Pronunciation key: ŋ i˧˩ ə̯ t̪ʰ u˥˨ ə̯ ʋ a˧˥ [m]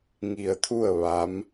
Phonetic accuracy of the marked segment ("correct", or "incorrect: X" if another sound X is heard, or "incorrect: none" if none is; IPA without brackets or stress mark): correct